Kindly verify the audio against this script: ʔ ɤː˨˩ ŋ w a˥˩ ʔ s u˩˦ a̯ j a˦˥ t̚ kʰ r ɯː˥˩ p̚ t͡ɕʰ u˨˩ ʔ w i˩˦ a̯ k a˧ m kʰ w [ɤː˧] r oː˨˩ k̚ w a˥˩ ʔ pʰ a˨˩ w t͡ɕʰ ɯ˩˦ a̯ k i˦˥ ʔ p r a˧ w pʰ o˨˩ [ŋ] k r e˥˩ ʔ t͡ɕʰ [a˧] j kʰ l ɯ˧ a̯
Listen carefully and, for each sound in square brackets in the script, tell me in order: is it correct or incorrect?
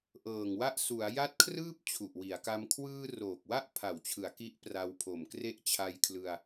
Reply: incorrect: ɯː˧, incorrect: m, correct

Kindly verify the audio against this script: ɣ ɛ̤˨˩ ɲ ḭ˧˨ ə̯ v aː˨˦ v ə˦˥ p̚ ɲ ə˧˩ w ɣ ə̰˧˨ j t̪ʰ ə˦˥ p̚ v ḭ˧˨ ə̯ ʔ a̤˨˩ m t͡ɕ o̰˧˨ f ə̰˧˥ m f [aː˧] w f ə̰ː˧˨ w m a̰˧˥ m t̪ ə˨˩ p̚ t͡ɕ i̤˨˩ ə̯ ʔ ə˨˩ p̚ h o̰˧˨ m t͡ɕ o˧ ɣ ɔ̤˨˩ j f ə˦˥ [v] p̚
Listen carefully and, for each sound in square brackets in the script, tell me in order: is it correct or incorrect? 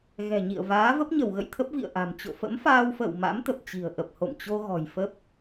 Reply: correct, incorrect: none

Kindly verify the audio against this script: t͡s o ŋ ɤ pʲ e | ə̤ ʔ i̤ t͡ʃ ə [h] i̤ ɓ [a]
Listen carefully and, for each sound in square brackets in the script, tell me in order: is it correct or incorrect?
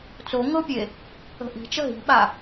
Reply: incorrect: ɦ, correct

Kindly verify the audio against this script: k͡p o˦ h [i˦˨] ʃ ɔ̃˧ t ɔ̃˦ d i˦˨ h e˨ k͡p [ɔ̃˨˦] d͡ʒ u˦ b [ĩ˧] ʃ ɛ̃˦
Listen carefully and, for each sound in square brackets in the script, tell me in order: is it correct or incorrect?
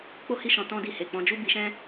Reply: correct, correct, incorrect: i˧

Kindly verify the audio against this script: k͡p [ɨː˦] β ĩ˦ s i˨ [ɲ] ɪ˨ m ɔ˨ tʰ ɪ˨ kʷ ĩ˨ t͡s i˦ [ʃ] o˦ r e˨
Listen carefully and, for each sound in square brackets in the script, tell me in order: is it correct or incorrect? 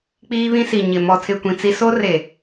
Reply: incorrect: iː˦, correct, incorrect: s

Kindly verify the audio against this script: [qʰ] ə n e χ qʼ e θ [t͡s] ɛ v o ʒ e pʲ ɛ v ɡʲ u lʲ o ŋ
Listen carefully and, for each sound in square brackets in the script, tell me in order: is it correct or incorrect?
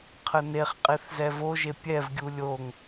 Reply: correct, incorrect: z

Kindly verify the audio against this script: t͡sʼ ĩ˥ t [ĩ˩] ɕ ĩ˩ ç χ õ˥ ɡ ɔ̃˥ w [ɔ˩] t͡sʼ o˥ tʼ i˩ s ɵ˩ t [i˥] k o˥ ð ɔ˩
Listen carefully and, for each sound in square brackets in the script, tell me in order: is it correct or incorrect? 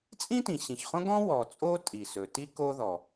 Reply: correct, correct, correct

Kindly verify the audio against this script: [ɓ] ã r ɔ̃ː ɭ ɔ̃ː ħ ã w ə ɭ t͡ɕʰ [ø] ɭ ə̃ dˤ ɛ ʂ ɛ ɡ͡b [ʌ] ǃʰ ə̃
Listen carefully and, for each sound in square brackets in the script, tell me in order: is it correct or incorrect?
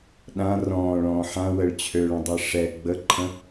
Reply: incorrect: ɗ, correct, incorrect: ə

